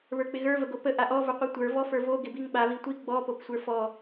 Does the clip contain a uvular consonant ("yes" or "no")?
yes